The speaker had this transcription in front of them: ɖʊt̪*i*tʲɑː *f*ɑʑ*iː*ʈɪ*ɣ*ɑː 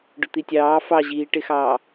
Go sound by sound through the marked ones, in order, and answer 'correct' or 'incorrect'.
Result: correct, correct, correct, incorrect: x

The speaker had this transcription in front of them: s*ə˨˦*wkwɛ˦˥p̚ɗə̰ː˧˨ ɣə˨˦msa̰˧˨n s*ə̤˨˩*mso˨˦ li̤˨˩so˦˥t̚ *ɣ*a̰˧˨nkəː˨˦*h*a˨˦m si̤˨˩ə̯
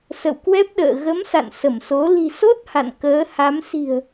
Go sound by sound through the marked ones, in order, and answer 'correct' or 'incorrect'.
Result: incorrect: ə̰˧˨, incorrect: ə˧˩, incorrect: h, correct

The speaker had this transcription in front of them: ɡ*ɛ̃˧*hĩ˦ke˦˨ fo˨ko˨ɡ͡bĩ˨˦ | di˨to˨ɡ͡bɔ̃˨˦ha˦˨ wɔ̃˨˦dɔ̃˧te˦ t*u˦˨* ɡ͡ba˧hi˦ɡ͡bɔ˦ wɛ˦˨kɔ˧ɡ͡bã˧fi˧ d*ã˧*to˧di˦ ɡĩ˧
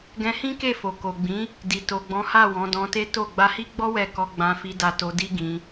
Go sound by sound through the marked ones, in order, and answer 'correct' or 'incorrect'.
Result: correct, incorrect: o˦˨, incorrect: a˧

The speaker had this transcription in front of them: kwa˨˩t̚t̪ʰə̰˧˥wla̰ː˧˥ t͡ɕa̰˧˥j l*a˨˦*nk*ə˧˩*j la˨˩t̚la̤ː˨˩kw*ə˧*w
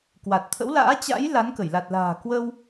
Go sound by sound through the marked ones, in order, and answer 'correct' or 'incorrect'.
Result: correct, correct, correct

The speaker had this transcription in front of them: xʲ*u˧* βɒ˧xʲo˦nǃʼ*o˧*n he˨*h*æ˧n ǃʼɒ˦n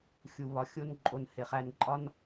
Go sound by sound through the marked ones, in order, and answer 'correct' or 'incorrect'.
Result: incorrect: u˨, correct, incorrect: χ

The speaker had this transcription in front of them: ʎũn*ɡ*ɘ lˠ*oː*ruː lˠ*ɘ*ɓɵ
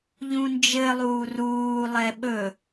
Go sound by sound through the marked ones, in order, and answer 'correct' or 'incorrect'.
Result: incorrect: d͡ʒ, incorrect: uː, incorrect: ɛ

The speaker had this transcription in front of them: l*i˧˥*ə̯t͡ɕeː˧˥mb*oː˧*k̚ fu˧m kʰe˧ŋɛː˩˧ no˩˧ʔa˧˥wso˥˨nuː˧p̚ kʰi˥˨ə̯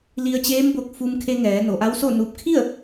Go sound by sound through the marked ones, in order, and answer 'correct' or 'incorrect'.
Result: incorrect: i˧, incorrect: o˧

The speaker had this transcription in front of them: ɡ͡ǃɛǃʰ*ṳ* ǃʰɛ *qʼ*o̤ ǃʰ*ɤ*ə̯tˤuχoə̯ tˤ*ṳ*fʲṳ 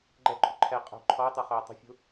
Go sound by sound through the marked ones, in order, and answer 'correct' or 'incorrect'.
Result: correct, correct, incorrect: ɔ, correct

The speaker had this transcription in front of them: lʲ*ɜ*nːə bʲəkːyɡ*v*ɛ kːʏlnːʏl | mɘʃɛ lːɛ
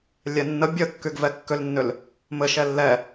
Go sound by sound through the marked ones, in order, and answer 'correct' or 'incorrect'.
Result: incorrect: ɛ, correct

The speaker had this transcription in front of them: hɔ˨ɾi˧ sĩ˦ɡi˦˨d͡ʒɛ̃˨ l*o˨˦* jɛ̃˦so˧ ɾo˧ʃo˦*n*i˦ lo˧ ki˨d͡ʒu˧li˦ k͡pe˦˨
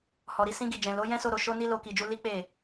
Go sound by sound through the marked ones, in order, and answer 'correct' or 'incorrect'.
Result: correct, correct

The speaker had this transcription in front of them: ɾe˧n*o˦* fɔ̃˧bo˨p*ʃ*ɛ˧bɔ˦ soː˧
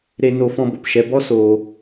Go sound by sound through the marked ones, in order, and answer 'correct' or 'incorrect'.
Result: incorrect: o˧, correct

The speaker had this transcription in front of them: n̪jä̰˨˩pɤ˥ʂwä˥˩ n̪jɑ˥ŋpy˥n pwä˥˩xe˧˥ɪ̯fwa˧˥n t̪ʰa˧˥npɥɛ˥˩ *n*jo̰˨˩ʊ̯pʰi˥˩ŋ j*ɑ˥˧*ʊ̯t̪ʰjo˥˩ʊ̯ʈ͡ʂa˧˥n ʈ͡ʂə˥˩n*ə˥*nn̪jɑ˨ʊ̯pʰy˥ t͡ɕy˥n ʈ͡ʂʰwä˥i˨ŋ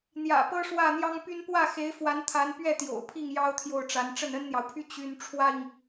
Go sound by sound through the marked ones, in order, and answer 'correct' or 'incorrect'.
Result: incorrect: t̪, incorrect: ɑ˥, correct

